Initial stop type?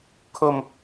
aspirated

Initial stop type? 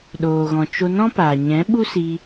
implosive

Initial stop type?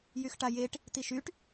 plain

